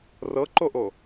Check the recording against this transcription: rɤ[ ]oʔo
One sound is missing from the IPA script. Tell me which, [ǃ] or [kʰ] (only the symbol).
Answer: ǃ